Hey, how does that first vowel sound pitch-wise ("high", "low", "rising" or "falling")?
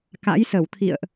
rising